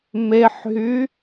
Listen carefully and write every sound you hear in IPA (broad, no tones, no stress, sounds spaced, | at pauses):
m e ħ ɦ y